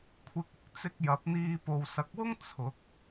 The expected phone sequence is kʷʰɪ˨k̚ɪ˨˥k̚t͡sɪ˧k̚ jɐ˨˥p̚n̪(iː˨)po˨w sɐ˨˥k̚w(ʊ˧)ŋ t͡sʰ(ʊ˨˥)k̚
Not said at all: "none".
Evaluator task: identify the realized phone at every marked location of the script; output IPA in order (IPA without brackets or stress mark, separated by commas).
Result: iː˧, ʊ˥, ʊ˨˥